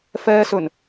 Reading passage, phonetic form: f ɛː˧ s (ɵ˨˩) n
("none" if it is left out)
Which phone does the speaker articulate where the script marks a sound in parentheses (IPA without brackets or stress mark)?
ɵ˨˩